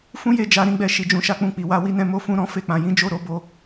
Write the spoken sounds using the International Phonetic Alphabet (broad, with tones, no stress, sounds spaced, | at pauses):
f ũ˦ j e˦˨ d͡ʒ a˧ ɾ ĩ˦ ɡ͡b ɛ˦˨ ʃ i˧ d͡ʒ ũ˧ ʃ a˦ k͡p ũ˦˨ k͡p i˨ w a˧ w i˦ n ɛ̃˦ m o˦ f ũ˦ ɾ ɔ̃˦ f e˦ k͡p ã˧ j ĩ˦ d͡ʒ o˦˨ ɾ o˧ b o˧